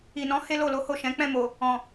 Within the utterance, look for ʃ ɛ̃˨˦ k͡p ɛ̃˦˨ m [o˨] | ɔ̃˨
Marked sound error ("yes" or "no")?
no